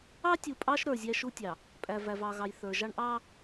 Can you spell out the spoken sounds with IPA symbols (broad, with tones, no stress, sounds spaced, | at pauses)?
ɑ˦ tʲ u˨ pʼ ɑ˦ ʃ ɾ ə˞˨ zʲ æ˦ ʃ u˦ tʲ ɑ˨ | pʼ æ˨ v æ˨ v ɑ˨ ɣ ɑ˨ j θ ə˞˨ ʒ ɑ˦ ɳ ʔ ɑ˦